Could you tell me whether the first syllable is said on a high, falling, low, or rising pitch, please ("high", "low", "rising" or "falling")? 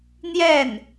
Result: falling